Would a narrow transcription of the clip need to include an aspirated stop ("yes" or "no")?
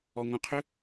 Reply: yes